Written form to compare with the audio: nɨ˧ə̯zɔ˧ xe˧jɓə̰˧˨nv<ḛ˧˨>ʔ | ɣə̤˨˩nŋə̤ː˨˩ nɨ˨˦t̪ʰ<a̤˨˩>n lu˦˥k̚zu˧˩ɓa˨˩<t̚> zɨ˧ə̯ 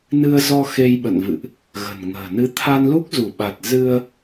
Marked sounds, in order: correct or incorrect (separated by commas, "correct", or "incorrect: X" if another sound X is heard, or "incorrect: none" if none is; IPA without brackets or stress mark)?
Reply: incorrect: ɨ̰˧˨, incorrect: a˧, correct